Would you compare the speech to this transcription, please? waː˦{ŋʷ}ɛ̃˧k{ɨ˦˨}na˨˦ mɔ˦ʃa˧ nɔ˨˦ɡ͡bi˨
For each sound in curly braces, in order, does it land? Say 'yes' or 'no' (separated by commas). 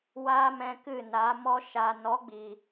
no, yes